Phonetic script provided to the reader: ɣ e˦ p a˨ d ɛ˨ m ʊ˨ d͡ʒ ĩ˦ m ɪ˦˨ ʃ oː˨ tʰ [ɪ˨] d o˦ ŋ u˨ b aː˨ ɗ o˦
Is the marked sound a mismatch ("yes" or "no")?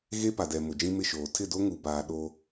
yes